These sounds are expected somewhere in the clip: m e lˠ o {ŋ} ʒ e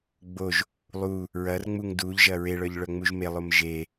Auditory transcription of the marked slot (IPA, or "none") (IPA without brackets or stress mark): m